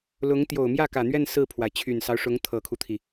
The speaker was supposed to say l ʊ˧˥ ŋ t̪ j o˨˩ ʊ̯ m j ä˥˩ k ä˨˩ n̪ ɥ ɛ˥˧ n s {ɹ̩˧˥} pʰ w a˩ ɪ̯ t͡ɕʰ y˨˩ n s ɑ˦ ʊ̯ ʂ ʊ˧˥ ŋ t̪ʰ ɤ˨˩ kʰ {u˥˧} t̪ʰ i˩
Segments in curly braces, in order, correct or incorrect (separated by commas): incorrect, incorrect